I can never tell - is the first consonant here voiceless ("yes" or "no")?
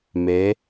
no